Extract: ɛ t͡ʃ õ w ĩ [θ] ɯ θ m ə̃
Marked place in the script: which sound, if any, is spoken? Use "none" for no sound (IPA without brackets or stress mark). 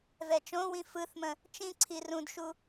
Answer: f